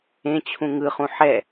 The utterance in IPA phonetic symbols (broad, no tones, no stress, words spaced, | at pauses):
ẽt͡ɕʰũ ŋɯχũ ħɛ